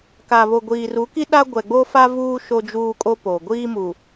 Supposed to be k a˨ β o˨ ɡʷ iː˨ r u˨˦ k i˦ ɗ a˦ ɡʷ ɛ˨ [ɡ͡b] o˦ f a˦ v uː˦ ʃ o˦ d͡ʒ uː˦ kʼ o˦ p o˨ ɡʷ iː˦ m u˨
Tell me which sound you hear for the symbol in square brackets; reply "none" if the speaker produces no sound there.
ɡ͡b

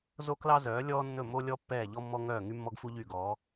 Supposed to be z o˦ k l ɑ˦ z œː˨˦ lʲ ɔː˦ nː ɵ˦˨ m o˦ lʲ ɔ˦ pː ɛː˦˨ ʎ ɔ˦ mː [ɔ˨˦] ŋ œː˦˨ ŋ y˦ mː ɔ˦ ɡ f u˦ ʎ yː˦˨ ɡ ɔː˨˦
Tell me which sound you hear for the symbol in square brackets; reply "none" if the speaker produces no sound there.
ɔ˦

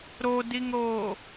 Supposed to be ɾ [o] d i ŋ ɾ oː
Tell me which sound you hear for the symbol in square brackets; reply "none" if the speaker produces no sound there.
o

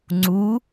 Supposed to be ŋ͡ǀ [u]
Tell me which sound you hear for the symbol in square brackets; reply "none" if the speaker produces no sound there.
u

